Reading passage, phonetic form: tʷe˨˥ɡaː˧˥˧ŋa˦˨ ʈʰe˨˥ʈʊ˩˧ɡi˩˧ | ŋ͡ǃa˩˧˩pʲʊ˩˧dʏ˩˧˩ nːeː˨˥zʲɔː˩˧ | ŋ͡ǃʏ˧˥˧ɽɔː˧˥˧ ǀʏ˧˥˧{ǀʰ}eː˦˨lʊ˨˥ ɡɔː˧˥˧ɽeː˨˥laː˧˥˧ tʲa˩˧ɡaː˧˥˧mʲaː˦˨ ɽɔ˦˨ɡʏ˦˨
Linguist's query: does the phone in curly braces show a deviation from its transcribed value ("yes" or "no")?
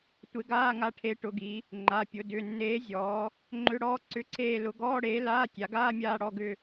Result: no